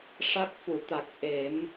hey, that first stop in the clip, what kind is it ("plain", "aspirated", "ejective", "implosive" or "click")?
plain